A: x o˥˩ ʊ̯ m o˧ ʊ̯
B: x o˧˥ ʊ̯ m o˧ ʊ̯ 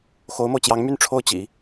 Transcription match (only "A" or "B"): B